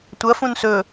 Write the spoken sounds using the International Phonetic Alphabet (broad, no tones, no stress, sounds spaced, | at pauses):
tʷ ɐ f ũ n s ɵ